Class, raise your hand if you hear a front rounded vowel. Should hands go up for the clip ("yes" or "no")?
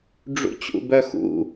yes